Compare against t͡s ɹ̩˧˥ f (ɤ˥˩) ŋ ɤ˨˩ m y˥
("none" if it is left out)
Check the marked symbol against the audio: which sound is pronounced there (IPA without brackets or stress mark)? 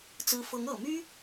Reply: ɤ˧˥